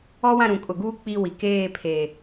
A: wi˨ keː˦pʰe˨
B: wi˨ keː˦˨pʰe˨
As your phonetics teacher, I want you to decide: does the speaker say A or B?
B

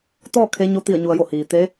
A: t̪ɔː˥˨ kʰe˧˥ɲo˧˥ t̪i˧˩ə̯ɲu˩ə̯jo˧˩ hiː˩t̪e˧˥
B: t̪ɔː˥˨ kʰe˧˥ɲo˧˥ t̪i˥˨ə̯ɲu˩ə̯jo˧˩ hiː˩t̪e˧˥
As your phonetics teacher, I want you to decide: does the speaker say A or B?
A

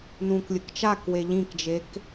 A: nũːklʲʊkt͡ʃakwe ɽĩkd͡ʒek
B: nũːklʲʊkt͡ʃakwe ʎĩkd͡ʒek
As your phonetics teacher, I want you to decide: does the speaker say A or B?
B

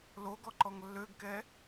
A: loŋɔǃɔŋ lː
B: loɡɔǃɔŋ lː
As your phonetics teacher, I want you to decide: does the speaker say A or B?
B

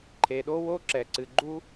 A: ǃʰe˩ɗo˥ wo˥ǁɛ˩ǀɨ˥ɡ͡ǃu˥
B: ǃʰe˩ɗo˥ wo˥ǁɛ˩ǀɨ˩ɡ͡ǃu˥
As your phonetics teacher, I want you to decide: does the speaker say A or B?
B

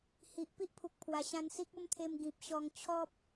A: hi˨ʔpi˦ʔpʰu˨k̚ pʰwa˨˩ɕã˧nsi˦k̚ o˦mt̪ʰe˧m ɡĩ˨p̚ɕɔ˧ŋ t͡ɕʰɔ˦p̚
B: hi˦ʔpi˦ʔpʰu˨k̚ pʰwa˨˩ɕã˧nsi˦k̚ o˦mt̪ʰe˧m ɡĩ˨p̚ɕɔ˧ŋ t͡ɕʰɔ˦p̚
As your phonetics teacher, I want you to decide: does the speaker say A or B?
A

